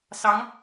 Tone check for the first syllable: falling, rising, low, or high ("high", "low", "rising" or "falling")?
rising